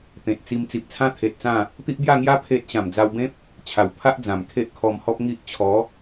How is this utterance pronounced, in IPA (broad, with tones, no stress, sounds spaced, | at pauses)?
t̪ ẽ˨ t̚ t͡s i˧ m t͡s i˨ p̚ t͡sʰ ã˦ t̪ʰ e˨ t̚ t͡s ã˥˧ | t̪ i˦ ʔ b j a˥˧ ŋ j a˦ pʰ e˦ t̚ ɕ ã˨˩ m d͡z a˧ w b ẽ˦ p̚ | t͡ɕʰ a˨˩ w pʰ a˦ ʔ d͡z ã˨˩ m kʰ e˦ ʔ kʰ ɔ˧ m h ɔ˦ p̚ ŋ i˦ ʔ t͡ɕʰ ɔ˨˦